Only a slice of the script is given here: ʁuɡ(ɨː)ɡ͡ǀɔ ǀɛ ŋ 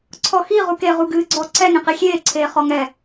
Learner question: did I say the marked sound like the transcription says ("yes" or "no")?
yes